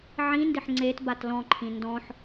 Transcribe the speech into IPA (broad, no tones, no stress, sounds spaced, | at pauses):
ʕ ĩ n d ɪ ħ ŋ͡ǀ e t b a t l ɔ̃ ǃʰ ĩ n d ɔ̃ ħ